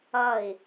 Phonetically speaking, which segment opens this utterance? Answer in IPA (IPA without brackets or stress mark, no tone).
ʌ